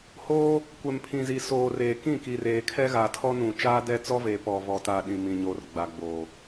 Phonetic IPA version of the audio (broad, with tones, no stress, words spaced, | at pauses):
hoː˦ | kʷɛ˨mpʰĩ˨zi˨ soː˨reː˨kĩ˦˨ ki˨reː˨ kʰɛ˦ɣa˨tʰɔ˦nũ˨ t͡ʃaː˦dɛ˦ t͡sɔ˦veː˨ pɔ˨vɔ˨ta˨ ɗĩ˨mĩ˨ɲoː˨r ɡ͡ba˨ɡ͡boː˨